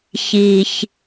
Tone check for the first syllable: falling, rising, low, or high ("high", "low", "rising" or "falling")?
low